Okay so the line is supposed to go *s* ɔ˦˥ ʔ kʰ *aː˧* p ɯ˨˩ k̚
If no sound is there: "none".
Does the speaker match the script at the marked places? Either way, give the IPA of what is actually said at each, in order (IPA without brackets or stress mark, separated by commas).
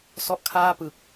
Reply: s, aː˥˩